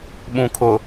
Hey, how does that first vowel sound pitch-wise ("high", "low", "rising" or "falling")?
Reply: low